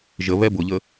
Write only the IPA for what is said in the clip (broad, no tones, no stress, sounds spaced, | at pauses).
ʒ ə β ɛ b ʊ ʎ ə